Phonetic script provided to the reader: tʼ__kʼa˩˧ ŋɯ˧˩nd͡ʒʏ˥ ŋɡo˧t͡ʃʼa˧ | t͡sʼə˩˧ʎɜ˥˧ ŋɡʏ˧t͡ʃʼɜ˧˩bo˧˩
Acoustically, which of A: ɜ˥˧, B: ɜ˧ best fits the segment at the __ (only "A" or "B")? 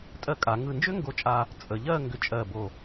B